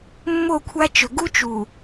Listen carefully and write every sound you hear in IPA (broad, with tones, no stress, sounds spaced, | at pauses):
mː o˦˨ kʷʰ a˦ t͡ʃ ɵ˨ ɡ u˦ t͡ʃ u˨